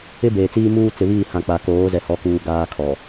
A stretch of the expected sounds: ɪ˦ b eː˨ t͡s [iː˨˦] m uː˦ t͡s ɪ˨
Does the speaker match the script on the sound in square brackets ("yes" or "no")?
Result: no